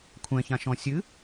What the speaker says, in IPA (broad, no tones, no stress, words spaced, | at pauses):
kʷʰɛ̃çãʃɔ̃ sʲɨ